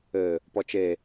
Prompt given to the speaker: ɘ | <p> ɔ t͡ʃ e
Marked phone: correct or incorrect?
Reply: correct